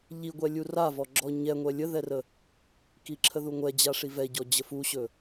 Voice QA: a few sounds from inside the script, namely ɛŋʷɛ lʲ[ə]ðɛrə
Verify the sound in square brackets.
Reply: correct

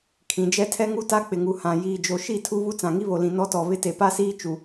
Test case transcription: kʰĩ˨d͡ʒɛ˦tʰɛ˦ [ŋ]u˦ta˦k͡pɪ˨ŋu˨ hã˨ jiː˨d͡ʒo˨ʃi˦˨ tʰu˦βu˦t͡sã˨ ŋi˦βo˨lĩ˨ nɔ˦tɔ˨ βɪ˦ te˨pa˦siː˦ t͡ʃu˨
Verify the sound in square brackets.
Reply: correct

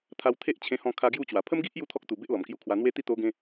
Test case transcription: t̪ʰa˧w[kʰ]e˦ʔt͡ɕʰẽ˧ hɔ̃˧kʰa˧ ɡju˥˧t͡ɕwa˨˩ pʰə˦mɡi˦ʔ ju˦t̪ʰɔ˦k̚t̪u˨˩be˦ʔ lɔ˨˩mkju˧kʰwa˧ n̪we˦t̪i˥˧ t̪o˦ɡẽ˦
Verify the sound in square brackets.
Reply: incorrect: t̪ʰ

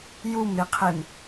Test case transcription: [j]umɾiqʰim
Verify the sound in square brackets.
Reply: correct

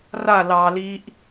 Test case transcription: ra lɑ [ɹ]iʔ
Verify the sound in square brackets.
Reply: incorrect: l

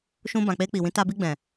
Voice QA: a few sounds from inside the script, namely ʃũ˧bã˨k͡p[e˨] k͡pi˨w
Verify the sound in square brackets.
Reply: incorrect: e˧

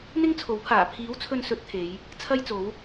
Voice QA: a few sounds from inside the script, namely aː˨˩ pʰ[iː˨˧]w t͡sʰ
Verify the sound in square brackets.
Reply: incorrect: iː˨˥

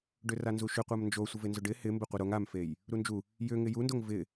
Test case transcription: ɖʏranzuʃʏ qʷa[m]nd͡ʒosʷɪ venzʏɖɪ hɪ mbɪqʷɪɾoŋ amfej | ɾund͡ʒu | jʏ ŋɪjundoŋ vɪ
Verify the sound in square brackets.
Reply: correct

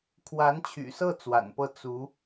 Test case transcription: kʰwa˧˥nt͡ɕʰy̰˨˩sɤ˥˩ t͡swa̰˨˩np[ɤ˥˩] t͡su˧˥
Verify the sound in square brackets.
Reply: correct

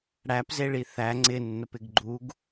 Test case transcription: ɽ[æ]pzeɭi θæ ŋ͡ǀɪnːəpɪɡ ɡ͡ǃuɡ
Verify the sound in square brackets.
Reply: correct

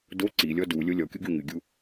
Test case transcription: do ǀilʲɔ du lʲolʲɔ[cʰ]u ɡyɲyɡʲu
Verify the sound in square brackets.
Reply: incorrect: kʲ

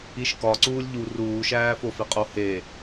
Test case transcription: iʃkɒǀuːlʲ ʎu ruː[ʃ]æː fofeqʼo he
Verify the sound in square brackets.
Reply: correct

